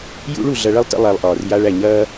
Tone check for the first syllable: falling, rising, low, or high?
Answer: high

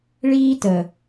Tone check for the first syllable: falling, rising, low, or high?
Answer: high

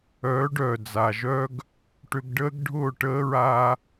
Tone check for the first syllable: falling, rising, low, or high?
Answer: rising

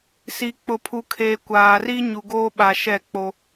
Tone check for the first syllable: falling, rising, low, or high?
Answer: low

